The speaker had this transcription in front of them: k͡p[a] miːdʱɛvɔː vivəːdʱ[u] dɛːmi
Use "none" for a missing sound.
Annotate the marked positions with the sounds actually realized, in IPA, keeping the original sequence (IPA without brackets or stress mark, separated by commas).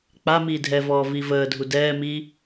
a, u